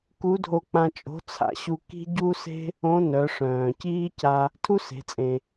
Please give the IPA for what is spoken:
ku˧˥dʱo˧k͡pã˧ t͡ʃʼo̤˧˥t͡sʰa̰˧˥ɕu˧ ki̤˥ɟu˥se̤˥ | õ˧˥nœ˩˧ ʂœ̃ː˩ciː˥ca˧ | tʰu˥se̤˩˧t͡sʼẽ˩

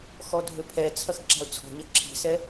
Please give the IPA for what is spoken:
xɔdʱøpʰɛt͡sʰɐx ǁa̤ʊ̯t͡sʰɔ̤ɲɐ ǁʰi̤sɛ

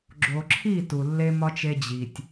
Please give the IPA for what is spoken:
ɡ͡ǁo˨ǁʰi˦˨ tu˨lːe˦mɒ˦t͡ʃ e˦d͡ʑi˨tʲ

